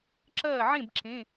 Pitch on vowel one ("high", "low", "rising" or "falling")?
falling